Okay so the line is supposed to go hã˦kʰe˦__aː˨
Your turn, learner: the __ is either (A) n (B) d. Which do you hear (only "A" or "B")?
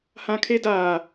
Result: B